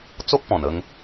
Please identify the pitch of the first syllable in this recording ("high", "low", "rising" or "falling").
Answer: high